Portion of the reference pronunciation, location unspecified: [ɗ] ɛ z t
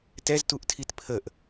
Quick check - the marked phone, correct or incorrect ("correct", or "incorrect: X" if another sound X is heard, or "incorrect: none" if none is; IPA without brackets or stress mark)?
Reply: incorrect: t